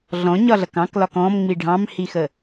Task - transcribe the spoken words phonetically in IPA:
ɮɔ̃ɲɒɮʌk ɑ̃klɒk ɔ̃mŋ͡mi ɖʱɑ̃mhixə

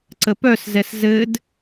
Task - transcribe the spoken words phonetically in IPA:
ǀəpœszɛs zɘd

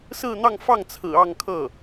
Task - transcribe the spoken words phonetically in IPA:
sɹ̩˥˧n̪ɑ˥˧ŋfɑ˥˩ŋt͡sʰɹ̩˨˩ ɑ˥˧ŋkʰɤ˥˩

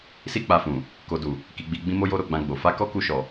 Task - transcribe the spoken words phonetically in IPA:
si˦k͡pa˧fũ˨ | ko˨du˨ | ki˧ɡ͡bi˧ɡ͡bĩ˦ mo˧jo˧ ɾo˧ɡ͡bã˧ɡ͡bo˨ fa˧kɔ˦ ku˧ʃɔ˨

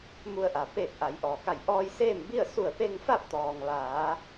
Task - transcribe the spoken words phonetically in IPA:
mu˧ə̯ʔa˩ peː˧˩k̚ ʔa˩˧jʔɔː˩ka˧˩j ʔɔː˧jseː˥˨mbi˥˨ə̯ su˧˩ə̯pe˧ŋfa˥˨p̚t̪ɔː˩ŋ ʋaː˩˧

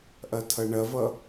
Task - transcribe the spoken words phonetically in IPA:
ʔɐtʰʌɳɐvʌ

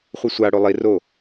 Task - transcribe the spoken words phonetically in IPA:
χʷɨsʷaɽo lˠi ro

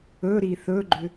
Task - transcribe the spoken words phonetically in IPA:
ɵ ɾiθɵɡ͡ǃʏ

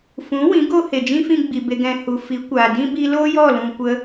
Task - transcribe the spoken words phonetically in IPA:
fũ˨˦wĩ˨˦ ɡo˧ he˨d͡ʒĩ˦fĩ˧ɡ͡bi˨ be˨ɡɛ̃˨ hu˨fi˨˦kʷaː˨ dĩ˦bi˧ loː˦jɔ˦˨lũ˨ kʷə˧

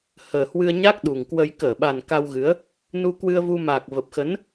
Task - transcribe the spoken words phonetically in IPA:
həː˨˩hwɨ˧ə̯ɲa˦˥k̚ ɗu˨˩ŋkwə˧j kəː˧˩ɓa˨˩n ka˧wɣɨ˨˦ə̯ | nu˧kwɨ˧ə̯vu˧ maː˨˩k̚və˨˩p̚xə˨˦n

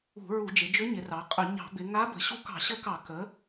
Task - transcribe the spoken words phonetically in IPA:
ṳ˧˩˧ɹu˧˩˧d͡ʒɪ˩˧d͡ʒʏ˧˥ ɲɪ˩˧rɑ˩˧qʼʏ˧˩˧ ɲɑ̤˧˩˧bɪ˩˧ ŋa˧˥ bə̤˩˧ɕu˧˥kɑ̤˧˩˧ ɕə˧˥kɑ˧˩˧ kə˩˧

